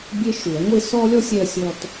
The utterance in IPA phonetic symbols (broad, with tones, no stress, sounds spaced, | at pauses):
bʲ e˦ ʃ u˨˦ ɐ̯ ŋʷ e˦ s ɔ˦ lʲ ɔ˦ sʲ ɛ˦ ɐ̯ sʲ ɔ˦ t